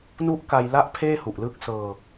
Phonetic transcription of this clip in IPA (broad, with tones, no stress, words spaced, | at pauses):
nu˦˥ʔka˧jla˦˥ʔ pʰeː˥˩hu˨˩ʔlɯː˦˥k̚sɤː˧